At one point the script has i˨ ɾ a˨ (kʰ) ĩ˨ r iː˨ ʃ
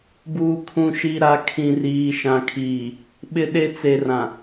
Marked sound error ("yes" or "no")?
no